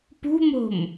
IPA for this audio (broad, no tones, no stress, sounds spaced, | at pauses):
p ṳ m o̤ m